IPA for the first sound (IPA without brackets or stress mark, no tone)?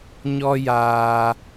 ɲ